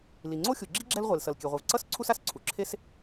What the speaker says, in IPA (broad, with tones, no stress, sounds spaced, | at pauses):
l i˩ ŋ͡ǀ o˥ xʲ u˩ ɡ͡ǁ i˥ ɡ͡ǁ ɛ˥ l ʁʷ e˩ l s ʌ˩ l kʲ ɛ˩ ʁʷ i˩ v ǀ ʌ˥ s ǀʰ u˥ s a˩ s ǀʰ u˩ ǁʰ e˥ s